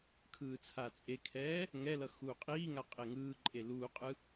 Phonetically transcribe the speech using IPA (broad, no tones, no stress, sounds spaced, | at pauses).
kʰ ɯː t͡sʰ a t͡sʼ e kʰ ɛː | ŋ ɛ l ʌ x uː qʼ iː ŋ a qʼ e ŋ ɯː ǃʼ e l uː qʼ ɯ